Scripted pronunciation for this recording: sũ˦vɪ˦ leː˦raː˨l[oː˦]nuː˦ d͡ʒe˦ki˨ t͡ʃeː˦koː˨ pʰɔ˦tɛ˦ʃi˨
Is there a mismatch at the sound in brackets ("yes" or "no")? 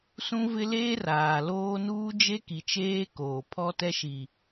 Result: no